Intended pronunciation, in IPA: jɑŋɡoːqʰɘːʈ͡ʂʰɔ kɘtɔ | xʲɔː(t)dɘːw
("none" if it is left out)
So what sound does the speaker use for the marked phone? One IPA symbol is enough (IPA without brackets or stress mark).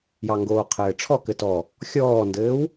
n